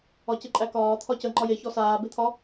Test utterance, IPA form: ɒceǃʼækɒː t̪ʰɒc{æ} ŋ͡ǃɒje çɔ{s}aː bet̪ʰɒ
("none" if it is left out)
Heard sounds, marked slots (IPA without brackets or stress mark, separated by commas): ə, s